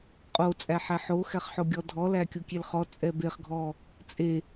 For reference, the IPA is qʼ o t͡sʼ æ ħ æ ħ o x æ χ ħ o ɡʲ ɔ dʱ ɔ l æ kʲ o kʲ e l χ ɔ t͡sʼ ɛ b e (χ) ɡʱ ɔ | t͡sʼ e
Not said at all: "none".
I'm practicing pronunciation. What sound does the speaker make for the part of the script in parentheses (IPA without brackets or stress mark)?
χ